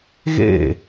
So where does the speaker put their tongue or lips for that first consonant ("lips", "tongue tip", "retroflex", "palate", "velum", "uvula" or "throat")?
velum